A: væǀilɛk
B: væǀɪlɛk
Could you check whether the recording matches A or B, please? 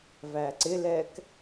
B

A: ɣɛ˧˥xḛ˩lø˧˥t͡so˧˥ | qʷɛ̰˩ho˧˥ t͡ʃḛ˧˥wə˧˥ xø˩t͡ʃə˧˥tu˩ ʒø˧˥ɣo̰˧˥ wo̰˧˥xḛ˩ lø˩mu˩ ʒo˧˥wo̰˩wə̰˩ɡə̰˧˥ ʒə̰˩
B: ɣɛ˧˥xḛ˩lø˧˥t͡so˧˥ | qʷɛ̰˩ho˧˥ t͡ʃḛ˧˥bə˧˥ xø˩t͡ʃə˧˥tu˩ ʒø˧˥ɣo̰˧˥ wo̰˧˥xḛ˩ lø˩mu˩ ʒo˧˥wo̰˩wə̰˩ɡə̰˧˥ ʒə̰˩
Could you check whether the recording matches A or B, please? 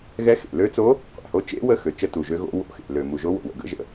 A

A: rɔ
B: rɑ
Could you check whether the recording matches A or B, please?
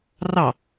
B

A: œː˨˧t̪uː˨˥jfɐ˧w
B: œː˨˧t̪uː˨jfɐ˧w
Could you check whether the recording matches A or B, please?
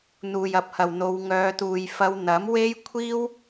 B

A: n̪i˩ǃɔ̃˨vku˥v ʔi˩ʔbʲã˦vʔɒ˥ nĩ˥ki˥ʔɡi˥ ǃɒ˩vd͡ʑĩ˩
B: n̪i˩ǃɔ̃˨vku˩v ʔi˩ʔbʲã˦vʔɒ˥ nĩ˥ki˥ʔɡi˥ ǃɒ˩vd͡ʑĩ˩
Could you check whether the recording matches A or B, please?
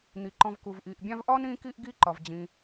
B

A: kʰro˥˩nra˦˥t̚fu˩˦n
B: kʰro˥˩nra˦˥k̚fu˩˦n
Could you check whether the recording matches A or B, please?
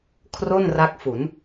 B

